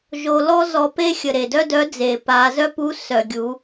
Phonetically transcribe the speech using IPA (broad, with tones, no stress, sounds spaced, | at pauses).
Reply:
ʒ o˧ l ɔ˥ z ɔ˧ p e˥ xʲ ə˩ ɾ e˩ d œ˥ d œ˧˥ d͡z e˩ p a˩˧ z œ˥ p u˧˥ s œ˩ ɡʲ u˩˧